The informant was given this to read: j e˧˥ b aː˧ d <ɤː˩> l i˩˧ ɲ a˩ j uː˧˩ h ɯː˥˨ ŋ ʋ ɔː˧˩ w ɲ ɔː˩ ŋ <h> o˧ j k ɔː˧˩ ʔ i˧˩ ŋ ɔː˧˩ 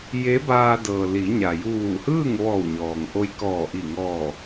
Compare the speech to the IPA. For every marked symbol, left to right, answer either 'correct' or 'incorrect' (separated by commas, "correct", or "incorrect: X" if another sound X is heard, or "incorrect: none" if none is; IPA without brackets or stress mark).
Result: correct, incorrect: ʔ